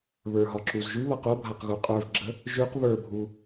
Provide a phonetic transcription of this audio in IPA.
β ə˞ ɦ ɒ ǁ u z ʒ ʉ β ʌ q o bʱ a q ɣ u qʼ ə˞ v ɡ͡ǁ ə | ʒ ʉ q β ə˞ bʱ u

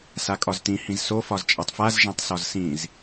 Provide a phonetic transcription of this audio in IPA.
s a kʼ ɒ z t ĩ h ĩ z s o f ɒ z t͡ʃʼ a tˤ f a z ʒ ã tˤ s ɒ z s ĩ z

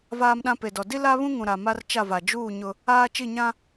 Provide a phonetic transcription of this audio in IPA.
v aː˦ m ɗ ã˦ p e˨ d ɔ˨ d i˦ l a˦ β ũ˦ ŋ ũ˨ ɾ a˨ m a˦ r t͡ʃ a˦˨ v a˨ d͡ʒ uː˦˨ ɲ ʊ˦ | aː˦ t͡ʃ i˦˨ ɲ ã˦

